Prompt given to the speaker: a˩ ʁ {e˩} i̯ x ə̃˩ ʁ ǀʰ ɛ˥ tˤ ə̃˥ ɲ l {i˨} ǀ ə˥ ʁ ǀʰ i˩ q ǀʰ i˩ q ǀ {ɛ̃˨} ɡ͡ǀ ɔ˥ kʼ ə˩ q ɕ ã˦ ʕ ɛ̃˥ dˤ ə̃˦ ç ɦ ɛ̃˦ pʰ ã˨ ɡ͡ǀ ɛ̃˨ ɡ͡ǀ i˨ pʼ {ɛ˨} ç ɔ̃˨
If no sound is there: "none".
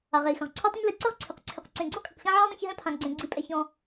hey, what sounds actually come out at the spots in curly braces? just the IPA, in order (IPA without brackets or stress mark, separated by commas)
e˩, i˨, ẽ˨, ɛ˨